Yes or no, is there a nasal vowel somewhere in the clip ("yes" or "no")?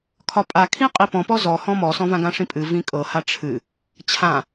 yes